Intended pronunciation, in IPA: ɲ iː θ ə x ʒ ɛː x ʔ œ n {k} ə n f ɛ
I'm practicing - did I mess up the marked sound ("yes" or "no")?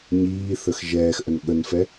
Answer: yes